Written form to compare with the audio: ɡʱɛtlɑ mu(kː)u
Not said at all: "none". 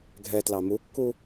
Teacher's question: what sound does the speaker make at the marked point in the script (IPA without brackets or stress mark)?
kː